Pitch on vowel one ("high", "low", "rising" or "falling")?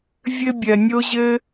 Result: high